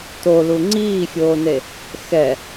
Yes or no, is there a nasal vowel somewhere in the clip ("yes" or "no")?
no